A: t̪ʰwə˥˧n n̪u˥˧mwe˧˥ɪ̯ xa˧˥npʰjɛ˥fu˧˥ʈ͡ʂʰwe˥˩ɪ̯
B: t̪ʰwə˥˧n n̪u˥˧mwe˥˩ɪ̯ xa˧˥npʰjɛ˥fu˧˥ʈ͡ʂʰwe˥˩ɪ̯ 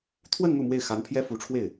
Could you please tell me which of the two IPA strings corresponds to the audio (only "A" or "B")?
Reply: B